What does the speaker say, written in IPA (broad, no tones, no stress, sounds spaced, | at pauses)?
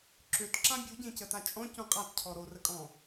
ǁ ø t ǁ ã bʲ u ɟ ẽ c ə t a t͡ʃʼ ɔ̃ c ũ qʼ a t cʰ ɔ ɾ o r ə kʼ ɔ̃